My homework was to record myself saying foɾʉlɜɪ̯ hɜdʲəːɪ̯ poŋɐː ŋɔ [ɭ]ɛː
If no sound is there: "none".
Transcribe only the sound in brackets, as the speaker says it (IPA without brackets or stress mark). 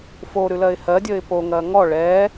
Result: ɭ